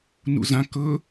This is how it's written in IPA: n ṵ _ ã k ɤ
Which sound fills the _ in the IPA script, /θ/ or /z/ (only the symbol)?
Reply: z